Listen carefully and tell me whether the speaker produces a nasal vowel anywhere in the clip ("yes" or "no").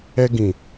yes